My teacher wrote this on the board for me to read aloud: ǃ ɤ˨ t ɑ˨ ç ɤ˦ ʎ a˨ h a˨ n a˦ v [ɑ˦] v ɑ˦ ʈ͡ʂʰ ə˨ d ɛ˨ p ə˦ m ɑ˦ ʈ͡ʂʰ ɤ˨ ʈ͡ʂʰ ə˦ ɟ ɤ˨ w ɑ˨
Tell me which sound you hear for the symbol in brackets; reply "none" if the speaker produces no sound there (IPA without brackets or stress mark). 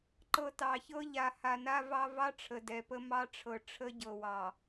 ɑ˦